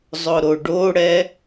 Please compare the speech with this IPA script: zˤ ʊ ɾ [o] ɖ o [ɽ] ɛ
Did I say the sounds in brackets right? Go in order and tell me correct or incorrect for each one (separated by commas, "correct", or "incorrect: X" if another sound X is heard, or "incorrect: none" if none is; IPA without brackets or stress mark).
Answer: correct, correct